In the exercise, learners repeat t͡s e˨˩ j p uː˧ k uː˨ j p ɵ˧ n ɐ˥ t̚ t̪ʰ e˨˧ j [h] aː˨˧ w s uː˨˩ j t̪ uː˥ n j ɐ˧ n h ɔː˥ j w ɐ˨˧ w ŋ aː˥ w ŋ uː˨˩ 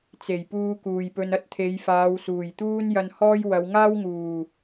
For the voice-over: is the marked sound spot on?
no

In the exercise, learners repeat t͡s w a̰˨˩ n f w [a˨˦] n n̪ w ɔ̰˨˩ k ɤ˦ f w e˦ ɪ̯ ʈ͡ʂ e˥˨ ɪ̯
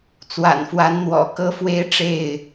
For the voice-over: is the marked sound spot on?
yes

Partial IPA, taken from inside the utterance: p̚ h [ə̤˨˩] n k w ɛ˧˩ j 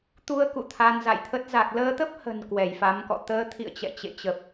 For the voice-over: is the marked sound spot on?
yes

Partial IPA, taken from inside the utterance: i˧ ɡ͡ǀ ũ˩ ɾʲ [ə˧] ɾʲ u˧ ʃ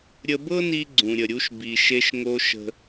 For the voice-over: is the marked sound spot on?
no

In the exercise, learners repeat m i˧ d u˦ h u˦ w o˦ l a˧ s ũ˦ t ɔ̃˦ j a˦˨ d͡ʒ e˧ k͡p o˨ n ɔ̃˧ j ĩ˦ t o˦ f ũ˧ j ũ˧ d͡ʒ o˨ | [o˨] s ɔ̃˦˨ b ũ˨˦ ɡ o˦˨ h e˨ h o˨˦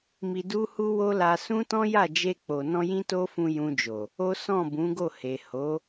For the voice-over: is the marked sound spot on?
no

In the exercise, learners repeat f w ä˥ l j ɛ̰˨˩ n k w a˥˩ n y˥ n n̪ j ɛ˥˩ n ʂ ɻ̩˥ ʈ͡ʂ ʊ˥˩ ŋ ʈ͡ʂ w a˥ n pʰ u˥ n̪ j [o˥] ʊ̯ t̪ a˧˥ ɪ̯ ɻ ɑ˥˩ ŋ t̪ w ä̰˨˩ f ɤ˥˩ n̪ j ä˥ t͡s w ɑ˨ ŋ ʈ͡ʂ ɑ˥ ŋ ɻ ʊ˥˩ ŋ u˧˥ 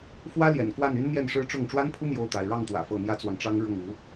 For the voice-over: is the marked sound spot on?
no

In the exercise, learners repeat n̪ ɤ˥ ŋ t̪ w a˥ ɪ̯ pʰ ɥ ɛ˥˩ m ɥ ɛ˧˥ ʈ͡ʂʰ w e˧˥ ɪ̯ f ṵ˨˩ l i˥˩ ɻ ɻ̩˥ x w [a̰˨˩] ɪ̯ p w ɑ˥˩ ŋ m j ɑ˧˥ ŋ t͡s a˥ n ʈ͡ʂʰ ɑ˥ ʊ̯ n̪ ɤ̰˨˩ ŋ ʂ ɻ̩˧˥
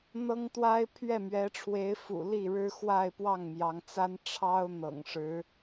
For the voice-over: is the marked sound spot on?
no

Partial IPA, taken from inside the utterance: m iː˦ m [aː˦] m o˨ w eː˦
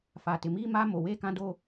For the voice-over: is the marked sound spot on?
yes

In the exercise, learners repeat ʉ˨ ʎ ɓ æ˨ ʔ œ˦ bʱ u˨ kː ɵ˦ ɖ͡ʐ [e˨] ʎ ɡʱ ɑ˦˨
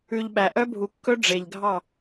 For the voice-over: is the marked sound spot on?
yes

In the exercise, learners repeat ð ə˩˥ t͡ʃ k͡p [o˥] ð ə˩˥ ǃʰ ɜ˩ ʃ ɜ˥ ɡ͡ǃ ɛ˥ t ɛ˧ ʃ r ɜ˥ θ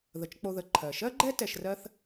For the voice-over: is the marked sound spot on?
no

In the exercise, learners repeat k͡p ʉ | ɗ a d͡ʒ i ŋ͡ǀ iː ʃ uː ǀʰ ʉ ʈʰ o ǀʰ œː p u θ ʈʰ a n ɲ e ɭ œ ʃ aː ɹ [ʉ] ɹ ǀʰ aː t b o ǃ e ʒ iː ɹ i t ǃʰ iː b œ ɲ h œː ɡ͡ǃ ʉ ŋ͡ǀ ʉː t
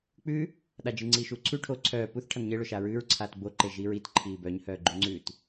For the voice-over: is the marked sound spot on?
no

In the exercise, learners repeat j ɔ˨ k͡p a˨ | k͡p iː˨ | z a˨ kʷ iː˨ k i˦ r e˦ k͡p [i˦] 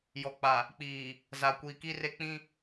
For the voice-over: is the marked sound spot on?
no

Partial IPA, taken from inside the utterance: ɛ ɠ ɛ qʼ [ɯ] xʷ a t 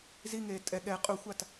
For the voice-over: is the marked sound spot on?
no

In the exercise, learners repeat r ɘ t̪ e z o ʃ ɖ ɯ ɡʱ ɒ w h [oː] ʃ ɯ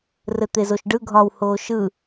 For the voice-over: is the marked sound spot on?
yes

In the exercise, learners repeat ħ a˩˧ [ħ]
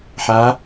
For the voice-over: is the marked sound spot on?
no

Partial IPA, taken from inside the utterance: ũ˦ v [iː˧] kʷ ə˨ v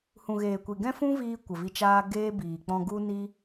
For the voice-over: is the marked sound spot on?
yes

